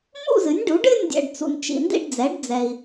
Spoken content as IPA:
m ṵ˥˨ z ɨ˩˥ nʲ ɖ u˩˥ ɖ ɨ˥˨ nʲ dʲ ɛ̰˨ ɖ t͡s ṵ˨ n t͡ʃ ḭ˨ n d ḭ˥˨ ɖ d͡z ɛ˩˥ ɖ d͡z ɛ˨ i̯

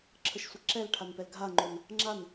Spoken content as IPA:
ǁʰ ə ʃ sʷ ə ǁ ɛ l ʈʰ a n p ɛ l ɡʱ a ŋ͡ǃ o n | ŋ͡ǁ a n

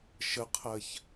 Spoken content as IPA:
ʃ ə qʰ ɜ ç

